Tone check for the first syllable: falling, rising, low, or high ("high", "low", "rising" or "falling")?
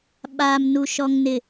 low